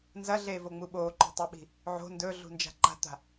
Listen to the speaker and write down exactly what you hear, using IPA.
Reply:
n z ɐ ɮ eː v o ŋ͡m u ɓ oː ǃ ṳ tˤ e ɓ i̤ | ʕ o̤ n d ɵː ɮ ṳ n d͡ʒ a̤ ǃ a̤ t̪ a̤

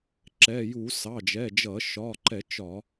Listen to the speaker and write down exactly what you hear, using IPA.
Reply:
ǁ ɛ˩˧˩ j u˧˩˧ s ɑ˩˧˩ d͡ʒ ɛ˩˧˩ d͡ʒ ʌ˧˩˧ ʃ ɒː˩˧˩ ǃ ɛ˧˩˧ t͡ʃ ɒ˧˩˧

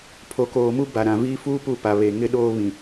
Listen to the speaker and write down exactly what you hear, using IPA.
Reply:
pʰ o˨ k oː˨ m u˦ b a˨ ɾ ã˨ v iː˦ f uː˦ p u˦˨ p a˨ β e˨ ŋ ɪ˦ ɗ oː˦ β ĩ˨

